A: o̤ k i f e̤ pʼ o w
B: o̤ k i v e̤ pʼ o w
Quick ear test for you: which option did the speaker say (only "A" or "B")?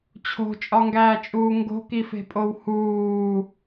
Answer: A